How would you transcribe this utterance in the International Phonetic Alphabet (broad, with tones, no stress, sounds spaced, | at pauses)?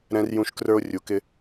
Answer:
ɾ ɛ̃˧ r j ũ˧ ʃ k r ə˞˧ o̯ rʲ u˩ k ɪ˧